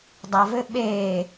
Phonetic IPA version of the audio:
dˤavɘ ɓe

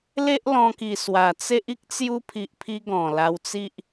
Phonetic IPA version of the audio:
le˦ʔlɔ̃˧ki˨˩ swa˨˩t͡se˦ʔ i˦k̚t͡sju˧pʰi˨ʔpʰi˧ ɡɔ̃˨˩la˧wt͡si˦ʔ

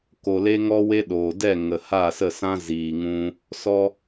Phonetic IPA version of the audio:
ko˨le˧ŋɔ˧we˧ ɗoː˨dɛ˦˨ ŋə˨ha˦˨sə˦˨sã˦ ziː˨ŋũ˧ | sɔ˧

